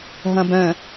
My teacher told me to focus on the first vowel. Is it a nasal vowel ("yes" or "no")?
yes